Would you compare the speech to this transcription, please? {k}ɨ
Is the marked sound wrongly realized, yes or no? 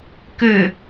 no